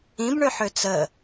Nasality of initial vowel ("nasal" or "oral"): nasal